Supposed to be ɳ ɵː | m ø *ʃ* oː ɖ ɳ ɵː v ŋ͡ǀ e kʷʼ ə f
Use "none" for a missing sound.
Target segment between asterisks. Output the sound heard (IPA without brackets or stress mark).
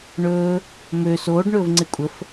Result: s